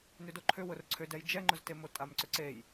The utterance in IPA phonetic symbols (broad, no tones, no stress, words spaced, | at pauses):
nʏdoǃʰʏ wʊrǀʰʏdɛj d͡ʒɛŋ͡ǃʊztemo tʼamǀʏǀej